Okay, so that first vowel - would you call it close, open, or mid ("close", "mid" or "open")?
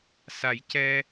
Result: open